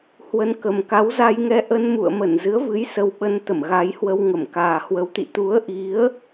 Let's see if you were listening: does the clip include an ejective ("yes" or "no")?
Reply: no